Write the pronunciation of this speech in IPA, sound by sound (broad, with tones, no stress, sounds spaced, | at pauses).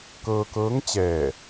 k ɤː˧ k ɤː˧˥ ŋ t͡ɕ ɛː˧˩